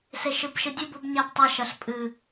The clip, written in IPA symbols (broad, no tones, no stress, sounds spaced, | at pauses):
s e ʃ ɨ b ʃ ɨ dʲ u b u b ɲ a b tˤ ɐ ʃ ɐ ɬ pʼ ɨ